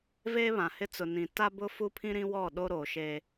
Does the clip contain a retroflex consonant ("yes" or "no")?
no